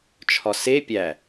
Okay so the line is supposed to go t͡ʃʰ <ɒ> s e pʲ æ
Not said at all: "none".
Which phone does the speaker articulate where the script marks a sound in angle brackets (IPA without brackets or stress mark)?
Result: ɒ